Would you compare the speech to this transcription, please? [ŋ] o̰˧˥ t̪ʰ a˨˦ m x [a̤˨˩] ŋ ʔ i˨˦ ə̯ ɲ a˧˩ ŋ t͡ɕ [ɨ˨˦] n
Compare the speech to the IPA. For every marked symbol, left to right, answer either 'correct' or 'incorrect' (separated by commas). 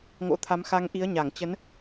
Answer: correct, incorrect, incorrect